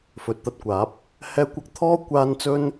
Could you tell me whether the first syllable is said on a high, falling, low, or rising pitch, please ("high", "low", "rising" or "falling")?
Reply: low